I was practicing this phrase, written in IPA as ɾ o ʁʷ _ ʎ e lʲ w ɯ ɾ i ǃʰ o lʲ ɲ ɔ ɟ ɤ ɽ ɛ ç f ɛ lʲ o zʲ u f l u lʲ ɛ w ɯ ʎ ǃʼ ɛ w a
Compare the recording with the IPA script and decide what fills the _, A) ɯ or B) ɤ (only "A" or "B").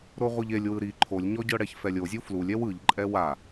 A